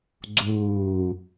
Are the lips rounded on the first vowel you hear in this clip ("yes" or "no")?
yes